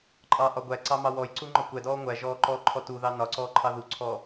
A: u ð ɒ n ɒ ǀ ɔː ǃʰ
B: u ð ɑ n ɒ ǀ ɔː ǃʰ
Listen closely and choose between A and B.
B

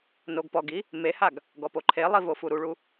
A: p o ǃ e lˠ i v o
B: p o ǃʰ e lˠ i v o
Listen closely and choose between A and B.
B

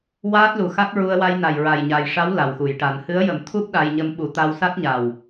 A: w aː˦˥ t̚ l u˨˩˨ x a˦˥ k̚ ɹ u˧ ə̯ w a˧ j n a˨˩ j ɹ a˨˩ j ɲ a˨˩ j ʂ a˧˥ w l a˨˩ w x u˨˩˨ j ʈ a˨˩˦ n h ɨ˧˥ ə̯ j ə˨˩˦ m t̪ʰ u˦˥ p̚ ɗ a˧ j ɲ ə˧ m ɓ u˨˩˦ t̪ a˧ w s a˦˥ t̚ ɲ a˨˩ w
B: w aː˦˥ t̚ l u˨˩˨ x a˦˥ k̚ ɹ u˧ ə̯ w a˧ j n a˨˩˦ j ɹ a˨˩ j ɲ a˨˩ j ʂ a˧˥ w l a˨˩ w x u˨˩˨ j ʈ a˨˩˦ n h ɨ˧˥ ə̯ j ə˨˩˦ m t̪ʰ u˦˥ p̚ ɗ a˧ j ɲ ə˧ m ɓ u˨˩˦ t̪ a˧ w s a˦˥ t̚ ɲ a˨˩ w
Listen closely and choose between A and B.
A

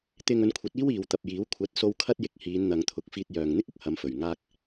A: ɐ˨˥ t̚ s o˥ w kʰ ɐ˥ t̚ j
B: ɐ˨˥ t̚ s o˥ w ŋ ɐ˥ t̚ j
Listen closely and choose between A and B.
A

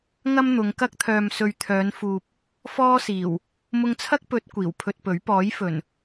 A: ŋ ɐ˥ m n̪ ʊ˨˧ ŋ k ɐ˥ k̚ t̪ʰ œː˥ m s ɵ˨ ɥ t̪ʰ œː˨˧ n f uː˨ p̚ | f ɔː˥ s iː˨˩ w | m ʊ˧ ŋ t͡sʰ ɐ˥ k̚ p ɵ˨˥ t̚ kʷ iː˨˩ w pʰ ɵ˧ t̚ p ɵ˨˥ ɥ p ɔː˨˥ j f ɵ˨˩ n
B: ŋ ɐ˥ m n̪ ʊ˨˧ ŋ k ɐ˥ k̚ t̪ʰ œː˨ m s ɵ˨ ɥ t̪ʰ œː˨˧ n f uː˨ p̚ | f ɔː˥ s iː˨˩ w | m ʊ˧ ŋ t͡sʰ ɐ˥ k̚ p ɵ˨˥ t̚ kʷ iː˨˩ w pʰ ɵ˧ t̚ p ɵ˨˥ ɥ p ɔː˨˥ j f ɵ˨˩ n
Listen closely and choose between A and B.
B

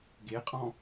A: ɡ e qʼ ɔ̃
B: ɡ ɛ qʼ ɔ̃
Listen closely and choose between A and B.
A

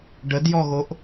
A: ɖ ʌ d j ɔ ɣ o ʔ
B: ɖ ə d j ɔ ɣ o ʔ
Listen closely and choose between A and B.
B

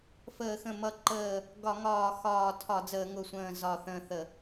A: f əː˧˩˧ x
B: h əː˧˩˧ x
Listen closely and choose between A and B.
A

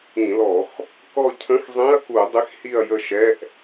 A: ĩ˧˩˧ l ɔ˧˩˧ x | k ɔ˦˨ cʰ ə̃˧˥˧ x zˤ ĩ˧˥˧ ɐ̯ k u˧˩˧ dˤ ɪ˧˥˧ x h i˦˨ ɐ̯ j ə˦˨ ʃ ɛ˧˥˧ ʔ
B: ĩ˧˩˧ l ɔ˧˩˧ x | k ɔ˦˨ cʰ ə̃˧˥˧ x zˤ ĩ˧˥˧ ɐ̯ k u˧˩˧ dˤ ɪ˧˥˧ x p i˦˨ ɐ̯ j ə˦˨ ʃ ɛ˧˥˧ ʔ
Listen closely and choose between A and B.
A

